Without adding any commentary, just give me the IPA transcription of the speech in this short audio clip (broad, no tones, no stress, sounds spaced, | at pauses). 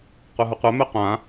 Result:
qʷ ɛ ɦ u qʷ ɛ m ɛ qʷ ã